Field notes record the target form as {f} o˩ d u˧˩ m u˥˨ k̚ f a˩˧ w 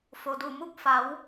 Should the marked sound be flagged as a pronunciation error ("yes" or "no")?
no